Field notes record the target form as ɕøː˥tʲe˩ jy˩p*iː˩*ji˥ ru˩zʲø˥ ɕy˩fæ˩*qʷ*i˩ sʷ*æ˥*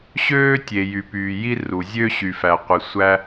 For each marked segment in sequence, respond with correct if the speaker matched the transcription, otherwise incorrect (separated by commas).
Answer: incorrect, correct, correct